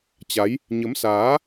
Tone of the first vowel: rising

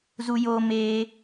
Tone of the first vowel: high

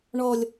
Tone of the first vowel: low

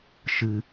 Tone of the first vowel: low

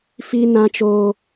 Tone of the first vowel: high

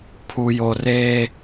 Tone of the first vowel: low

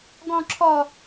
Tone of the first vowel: high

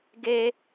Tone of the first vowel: high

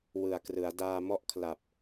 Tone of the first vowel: low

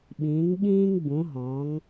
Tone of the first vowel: rising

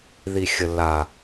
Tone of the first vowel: low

